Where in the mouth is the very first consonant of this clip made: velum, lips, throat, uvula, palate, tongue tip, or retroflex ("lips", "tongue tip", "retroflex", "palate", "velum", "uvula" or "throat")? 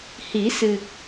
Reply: throat